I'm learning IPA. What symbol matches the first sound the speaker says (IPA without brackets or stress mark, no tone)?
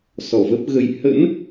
s